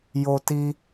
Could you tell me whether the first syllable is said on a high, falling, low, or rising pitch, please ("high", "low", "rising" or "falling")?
high